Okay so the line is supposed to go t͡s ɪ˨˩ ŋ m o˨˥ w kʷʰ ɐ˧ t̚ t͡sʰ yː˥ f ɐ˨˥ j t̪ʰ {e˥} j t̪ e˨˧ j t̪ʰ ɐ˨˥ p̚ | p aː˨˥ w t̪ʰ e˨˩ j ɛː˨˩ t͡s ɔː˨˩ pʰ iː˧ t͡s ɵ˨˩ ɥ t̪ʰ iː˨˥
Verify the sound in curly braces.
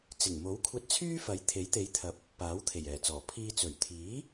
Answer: incorrect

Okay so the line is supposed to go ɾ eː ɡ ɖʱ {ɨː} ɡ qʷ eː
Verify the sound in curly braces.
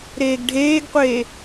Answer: incorrect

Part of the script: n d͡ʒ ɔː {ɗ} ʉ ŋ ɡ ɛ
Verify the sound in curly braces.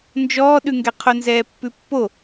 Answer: correct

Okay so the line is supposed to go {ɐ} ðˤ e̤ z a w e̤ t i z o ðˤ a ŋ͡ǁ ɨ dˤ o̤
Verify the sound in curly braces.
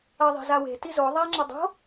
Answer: correct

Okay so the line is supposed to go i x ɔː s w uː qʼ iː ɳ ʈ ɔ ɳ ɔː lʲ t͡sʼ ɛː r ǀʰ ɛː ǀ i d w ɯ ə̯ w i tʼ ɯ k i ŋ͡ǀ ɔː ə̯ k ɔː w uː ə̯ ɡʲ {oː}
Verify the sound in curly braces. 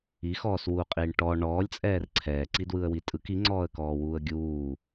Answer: incorrect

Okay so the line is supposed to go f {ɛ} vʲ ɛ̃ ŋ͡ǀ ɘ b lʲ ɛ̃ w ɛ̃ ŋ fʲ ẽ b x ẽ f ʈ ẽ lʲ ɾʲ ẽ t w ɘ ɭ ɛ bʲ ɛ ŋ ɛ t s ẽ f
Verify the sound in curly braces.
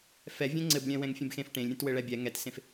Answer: correct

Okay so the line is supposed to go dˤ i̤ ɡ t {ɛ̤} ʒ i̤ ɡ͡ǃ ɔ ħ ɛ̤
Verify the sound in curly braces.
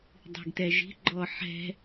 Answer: incorrect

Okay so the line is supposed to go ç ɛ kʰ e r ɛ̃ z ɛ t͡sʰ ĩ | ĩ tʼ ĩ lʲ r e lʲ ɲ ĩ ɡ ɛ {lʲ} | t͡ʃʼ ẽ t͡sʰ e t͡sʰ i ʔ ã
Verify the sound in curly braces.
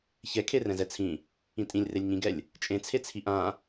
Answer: correct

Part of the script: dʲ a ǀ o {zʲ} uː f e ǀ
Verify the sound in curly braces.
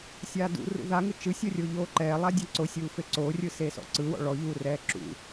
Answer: incorrect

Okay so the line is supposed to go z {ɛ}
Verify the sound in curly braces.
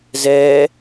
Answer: correct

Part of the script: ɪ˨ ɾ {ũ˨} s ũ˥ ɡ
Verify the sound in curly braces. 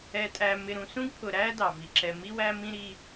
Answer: correct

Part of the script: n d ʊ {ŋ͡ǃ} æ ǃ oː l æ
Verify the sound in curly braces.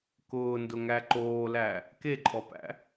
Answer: incorrect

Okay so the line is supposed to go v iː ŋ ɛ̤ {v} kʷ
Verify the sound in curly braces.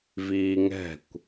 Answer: incorrect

